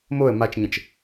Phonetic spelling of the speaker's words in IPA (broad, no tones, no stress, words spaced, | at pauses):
moə̯ mat͡ʃɲə̃t͡ʃ